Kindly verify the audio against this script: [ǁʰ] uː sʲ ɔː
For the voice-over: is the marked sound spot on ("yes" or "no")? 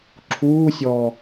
yes